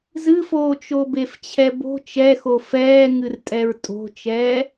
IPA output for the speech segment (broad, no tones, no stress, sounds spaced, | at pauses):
z ɨ f oː t͡ʃ o b e f t͡ɕʰ ɛ b o̤ t͡ʃ ɛ x o f ɛː ŋ ɨ r tʼ ɛ ɹ tʼ o̤ t͡ʃ ɛː